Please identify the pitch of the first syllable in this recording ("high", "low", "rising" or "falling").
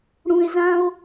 low